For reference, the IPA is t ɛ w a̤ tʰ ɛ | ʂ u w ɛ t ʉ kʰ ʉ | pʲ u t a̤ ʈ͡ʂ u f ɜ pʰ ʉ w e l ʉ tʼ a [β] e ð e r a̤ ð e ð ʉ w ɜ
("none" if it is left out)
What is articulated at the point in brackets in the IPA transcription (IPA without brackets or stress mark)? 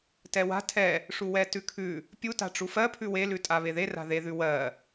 β